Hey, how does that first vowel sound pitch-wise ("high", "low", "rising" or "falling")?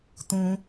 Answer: high